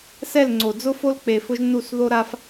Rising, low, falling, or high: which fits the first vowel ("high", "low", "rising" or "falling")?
falling